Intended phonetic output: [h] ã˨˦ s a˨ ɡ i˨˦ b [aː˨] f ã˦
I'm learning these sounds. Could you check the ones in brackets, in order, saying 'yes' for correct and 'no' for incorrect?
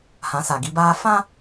yes, no

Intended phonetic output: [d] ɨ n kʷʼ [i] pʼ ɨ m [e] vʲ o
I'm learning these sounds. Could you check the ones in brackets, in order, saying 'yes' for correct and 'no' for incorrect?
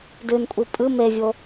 yes, yes, yes

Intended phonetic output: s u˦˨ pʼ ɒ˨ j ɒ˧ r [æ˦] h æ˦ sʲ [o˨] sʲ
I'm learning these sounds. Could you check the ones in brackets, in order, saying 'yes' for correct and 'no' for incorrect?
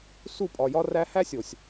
no, yes

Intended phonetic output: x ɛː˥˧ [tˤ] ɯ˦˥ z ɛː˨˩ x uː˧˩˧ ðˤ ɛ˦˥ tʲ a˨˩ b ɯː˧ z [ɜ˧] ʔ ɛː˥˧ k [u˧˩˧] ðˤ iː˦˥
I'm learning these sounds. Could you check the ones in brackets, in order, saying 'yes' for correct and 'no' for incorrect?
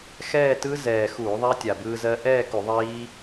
no, yes, yes

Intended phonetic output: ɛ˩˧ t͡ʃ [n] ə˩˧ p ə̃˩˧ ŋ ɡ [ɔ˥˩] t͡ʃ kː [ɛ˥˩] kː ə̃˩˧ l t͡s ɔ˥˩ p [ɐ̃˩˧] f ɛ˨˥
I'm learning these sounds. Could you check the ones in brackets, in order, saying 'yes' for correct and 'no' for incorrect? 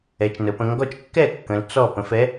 yes, yes, yes, no

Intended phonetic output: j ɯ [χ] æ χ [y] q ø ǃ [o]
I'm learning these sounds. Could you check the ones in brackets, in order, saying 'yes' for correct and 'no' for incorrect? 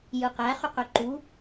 no, yes, no

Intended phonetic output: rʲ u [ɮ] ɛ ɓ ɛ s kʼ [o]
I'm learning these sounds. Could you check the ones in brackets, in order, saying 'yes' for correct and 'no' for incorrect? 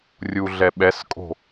yes, no

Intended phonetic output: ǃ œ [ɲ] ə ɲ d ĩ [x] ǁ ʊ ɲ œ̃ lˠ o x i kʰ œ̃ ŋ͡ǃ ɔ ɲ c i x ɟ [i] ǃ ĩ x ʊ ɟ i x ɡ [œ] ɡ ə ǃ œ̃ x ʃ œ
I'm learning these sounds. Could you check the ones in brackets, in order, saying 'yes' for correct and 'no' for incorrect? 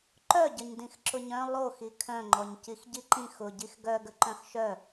no, yes, yes, yes

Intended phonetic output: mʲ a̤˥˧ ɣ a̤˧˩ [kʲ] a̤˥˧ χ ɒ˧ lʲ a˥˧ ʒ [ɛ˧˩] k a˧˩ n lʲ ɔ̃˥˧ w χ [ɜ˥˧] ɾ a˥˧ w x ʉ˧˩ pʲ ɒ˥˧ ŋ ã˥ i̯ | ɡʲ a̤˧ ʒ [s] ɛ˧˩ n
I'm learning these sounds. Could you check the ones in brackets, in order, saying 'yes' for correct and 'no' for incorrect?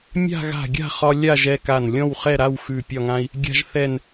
no, no, no, no

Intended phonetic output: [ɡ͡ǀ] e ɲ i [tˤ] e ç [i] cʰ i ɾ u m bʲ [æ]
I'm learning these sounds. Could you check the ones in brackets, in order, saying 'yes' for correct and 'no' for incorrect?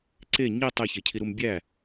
no, yes, no, yes

